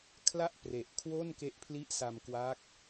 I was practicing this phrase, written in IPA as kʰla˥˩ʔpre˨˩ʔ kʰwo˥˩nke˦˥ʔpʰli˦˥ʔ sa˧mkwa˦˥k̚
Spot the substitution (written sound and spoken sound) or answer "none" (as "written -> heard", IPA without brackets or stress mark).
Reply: none